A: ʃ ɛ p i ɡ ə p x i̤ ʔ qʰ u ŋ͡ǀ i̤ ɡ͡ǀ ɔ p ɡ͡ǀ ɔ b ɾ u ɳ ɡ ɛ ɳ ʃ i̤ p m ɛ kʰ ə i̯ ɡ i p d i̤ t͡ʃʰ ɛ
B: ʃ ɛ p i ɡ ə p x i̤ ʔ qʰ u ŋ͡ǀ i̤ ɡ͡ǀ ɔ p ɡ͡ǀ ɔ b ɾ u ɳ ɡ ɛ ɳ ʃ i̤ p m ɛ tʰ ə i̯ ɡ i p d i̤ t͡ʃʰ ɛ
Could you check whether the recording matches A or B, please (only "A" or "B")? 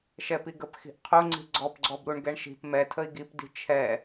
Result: B